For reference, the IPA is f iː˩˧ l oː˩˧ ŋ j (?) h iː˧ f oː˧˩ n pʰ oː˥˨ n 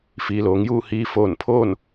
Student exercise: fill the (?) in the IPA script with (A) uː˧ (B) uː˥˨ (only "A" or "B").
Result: B